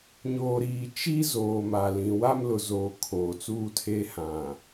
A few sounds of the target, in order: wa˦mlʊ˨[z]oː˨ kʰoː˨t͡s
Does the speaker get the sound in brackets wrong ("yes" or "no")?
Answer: no